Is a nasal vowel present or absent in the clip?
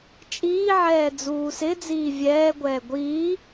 absent